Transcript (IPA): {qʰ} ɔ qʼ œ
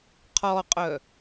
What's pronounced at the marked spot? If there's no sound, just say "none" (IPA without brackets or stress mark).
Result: qʰ